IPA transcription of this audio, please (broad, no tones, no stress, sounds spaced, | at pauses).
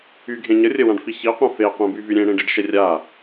y ɡʱ ẽ ɲ ə rʲ ə w ã ɖ f i ç i qʷ ɛ̃ f e qʷ ẽ b y v y ɾʲ ẽ ɽ ẽ ɖ i ɖ ʃ ɛ rʲ a